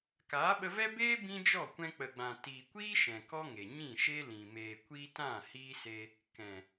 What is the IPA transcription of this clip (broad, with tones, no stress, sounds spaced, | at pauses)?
k aː˨˦ ɓ ə˧ v ɛ˦ b eː˦ b ĩ˦ d͡ʒ ɔ˦˨ kʷ ɛ̃˧ k͡p ə˨ ɡ͡b ã˨ t iː˨ kʷ iː˦ ʃ ɛ̃˨ k ɔ˦ ŋ e˨ ɲ ĩ˦˨ ʃ e˦ l ĩ˨ m eː˨ kʷ iː˧ t ã˦˨ h iː˦ s e˧ | k ɛ̃˨